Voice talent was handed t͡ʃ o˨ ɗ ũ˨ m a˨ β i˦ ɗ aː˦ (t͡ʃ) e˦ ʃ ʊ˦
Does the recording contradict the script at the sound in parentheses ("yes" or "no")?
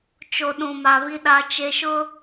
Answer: no